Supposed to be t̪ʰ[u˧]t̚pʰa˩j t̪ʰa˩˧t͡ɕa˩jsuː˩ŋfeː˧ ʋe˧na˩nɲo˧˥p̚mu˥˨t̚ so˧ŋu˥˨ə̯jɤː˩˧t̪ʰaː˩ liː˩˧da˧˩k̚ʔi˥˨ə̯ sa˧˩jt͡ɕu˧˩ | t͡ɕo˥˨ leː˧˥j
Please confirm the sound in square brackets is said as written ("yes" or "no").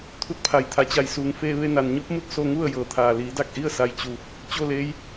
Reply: yes